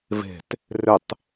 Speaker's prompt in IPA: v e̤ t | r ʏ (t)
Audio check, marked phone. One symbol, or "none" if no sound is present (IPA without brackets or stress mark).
tˤ